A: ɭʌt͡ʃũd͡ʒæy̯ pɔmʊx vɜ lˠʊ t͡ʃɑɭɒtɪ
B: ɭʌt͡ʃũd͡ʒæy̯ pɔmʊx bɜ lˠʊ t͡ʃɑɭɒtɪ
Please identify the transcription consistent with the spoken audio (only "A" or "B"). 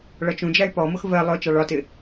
A